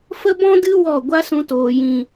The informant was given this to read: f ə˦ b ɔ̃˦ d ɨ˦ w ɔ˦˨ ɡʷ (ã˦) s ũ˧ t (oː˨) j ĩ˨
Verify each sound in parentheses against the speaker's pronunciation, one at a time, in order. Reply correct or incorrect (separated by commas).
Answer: incorrect, correct